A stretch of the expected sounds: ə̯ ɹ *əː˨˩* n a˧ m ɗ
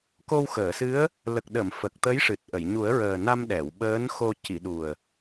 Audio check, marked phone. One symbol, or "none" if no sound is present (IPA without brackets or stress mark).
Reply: əː˨˩